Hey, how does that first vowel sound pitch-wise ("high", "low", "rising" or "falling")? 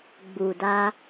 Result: low